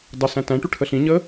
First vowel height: mid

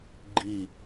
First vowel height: high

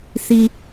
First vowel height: high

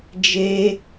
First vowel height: mid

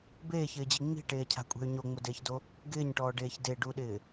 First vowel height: mid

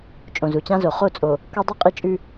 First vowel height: mid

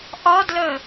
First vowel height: low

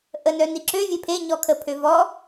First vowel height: mid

